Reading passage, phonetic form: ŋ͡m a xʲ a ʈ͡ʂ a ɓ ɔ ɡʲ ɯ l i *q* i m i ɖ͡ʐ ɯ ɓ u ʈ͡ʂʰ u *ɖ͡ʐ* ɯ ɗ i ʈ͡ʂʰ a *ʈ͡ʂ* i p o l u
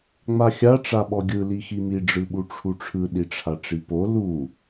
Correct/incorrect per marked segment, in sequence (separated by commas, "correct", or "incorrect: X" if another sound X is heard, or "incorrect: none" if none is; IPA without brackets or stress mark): incorrect: x, incorrect: ʈ͡ʂʰ, correct